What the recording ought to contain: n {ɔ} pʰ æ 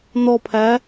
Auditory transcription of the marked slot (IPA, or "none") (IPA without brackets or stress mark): ɔ